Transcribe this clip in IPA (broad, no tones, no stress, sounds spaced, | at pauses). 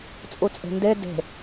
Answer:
t͡sʼ u t͡sʼ e̤ n d e d e̤